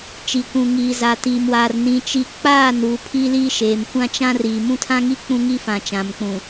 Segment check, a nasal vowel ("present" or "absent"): present